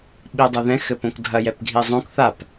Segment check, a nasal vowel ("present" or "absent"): present